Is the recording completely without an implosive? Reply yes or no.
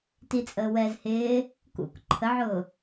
yes